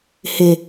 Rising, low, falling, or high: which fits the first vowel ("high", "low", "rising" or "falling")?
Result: low